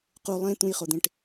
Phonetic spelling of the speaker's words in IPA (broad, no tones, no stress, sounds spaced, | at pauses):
q u lˠ ẽ t̪ ũ j χ o d̪ ẽ ʈ